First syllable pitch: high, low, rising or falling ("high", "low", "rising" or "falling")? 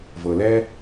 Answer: low